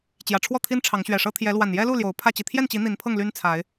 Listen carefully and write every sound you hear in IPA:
t͡ɕ j ä˨˩ ʈ͡ʂʰ w ɔ˥˨ t̪ʰ i˦ n ʈ͡ʂʰ ɑ˨˦ ŋ ɕ ɥ ɛ˨˩ ʂ ɤ˦ t̪ʰ j ɛ˨˦ l w a˨˩ n j ɛ˦ l u˥˨ l j o˨˦ ʊ̯ pʰ ä˥˨ t͡ɕ i˨˩ t̪ʰ j ɛ˥˨ n t͡ɕ i˨˦ n̪ i˨˦ n pʰ ɤ˥˨ ŋ l y˦ n t͡sʰ a˨˦ ɪ̯

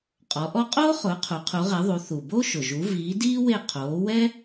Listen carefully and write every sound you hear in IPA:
qʼ ɔ˨˦ ʔ ɔ˥ qʼ oː˥ χ ʊː˨˦ qʰ u˨˦ qʰ u˨˦ ʁ e˨˦ ðˤ u˨˦ θ u˩ b o˥ ʃ ʊ˩ ʒ u˨˦ v iː˨˦ d iː˥ w e˦˨ qʰ oː˨˦ w ɛ˥

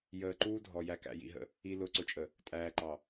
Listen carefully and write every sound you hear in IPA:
j əː˨ ǃ uː˦ dʱ ɔ˨ j æ˨ k æ̰˨ j ḭ˨ ɦ ə̰˨ | i˨ l ʊː˨ ǀ ʊ˨ t͡ʃʼ ə˨ | tʼ æː˨ ǃ ɑ˨

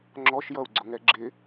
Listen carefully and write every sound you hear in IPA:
ŋ͡ǁ ɔ ʃ j ʌ u̯ ɡ͡ǀ ʊ ŋ ɛ ɡ͡ǁ ɪ

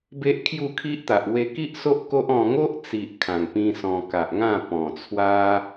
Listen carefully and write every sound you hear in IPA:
b e˦ ʔ kʰ j u˥˧ kʰ i˦ ʔ t̪ a˨ ʔ w e˧ k i˦ ʔ s o˦ ʔ k o˦ ʔ ɔ̃˧ ŋ o˦ ʔ t͡s i˨ ʔ kʰ ã˨˩ ŋ p ĩ˦ s ɔ̃˧ k a˨ ʔ ŋ ã˥˧ p ɔ̃˨˩ t͡sʰ w a˦

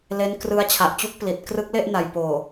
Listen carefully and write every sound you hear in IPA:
l e˦˥ n k r ɯ˦˥ a̯ t͡ɕʰ a˨˩ ʔ t͡ɕ u˦˥ k̚ p l i˨˩ t̚ k r ɯ˦˥ k̚ l e˥˩ ʔ n a˨˩ j p oː˨˩

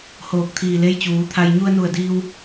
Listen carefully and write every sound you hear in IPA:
h oː˧˩ k̚ t̪ʰ iː˧˩ l e˧˥ j t͡ɕ uː˩˧ t̪ʰ a˧ j ɲ u˧ ə̯ n u˧˩ ə̯ d iː˧ w

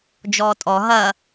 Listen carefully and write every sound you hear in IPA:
d͡ʒ ɔː tʼ ɔ ɦ ɐ

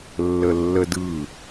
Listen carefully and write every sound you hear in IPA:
lː ə lː ə d ɯ

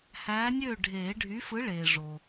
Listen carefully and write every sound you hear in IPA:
h æː˨˥ nʲ øː˥˩ ɖʱ eː˨˩˦ ɖʱ y˨˥ f ɯ˨˥ ɭ eː˨ ʐ o˨

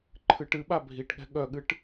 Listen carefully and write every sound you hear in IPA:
ǃʰ ɨ ʈ ɨ ɓ a bʱ i ʈ ɠ ɛ̤ ɠ œ ɠ ɨ ʈ

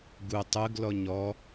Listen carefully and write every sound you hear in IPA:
ɡ u tˤ ɯ ɡ l ɔ ɲ ɔ

